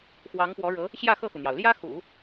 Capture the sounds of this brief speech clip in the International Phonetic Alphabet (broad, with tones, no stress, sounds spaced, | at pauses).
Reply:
x w ɑ˧˥ ŋ p w ɔ˧˥ ɻ ɤ˧˥ | ɕ j ä˥˧ x ɤ˥˩ x u˩ n̪ j ɑ˩ ʊ̯ l j ä˥ x ṵ˨˩˦